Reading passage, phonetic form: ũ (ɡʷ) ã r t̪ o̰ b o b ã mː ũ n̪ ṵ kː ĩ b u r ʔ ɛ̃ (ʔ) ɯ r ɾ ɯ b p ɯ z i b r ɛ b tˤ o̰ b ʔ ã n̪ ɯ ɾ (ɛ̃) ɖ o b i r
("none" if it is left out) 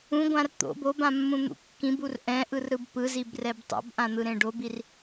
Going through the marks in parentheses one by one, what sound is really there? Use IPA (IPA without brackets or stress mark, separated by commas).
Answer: ɡʷ, ʔ, ẽ